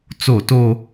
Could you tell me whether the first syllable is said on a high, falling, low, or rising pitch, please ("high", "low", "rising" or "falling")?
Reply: falling